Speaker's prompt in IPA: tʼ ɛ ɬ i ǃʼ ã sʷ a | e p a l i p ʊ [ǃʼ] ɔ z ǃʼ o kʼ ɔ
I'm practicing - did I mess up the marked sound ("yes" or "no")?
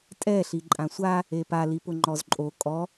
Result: yes